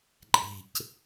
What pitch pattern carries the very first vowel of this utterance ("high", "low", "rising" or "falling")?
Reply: low